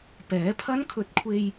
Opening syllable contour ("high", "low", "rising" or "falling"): rising